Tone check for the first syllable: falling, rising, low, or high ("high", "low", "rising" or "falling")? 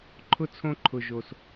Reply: high